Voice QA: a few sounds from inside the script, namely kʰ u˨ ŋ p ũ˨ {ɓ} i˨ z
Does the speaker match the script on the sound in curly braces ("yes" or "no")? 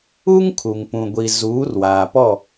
no